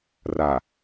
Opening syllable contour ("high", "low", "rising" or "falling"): low